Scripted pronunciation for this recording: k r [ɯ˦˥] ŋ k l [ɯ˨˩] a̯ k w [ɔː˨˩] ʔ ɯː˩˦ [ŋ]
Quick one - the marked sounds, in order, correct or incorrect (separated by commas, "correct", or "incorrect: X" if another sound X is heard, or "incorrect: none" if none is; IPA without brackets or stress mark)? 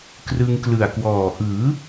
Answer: incorrect: ɯ˧, correct, correct, incorrect: none